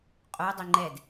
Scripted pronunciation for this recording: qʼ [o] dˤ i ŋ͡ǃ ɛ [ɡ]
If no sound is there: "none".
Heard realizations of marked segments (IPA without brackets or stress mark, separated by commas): o, d